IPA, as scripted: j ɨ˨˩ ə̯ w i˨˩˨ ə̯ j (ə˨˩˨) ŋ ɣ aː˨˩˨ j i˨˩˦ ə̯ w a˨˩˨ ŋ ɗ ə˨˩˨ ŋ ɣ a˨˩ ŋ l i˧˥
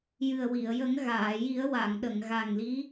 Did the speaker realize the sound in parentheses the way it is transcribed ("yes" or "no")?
no